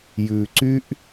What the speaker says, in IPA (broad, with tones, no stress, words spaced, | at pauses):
jʉː˨ǀy˦ʔ